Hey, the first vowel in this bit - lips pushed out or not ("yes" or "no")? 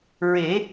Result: no